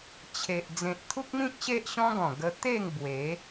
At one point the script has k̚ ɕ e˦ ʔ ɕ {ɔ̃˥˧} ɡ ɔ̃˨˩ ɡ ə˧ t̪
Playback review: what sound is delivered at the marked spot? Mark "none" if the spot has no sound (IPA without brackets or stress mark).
ɔ̃˦